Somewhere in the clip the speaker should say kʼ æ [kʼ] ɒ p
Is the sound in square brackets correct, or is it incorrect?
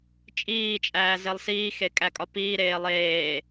correct